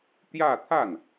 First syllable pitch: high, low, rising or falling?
falling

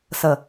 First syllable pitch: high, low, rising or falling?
low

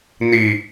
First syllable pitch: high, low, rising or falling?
low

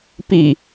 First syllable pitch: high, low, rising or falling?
low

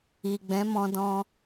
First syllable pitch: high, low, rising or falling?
low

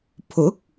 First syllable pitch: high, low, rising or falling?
rising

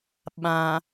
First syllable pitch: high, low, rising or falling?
low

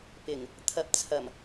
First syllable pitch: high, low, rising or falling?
low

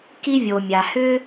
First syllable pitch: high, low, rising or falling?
high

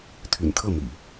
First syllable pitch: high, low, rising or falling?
low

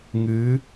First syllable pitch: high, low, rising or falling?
rising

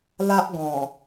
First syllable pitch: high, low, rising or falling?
high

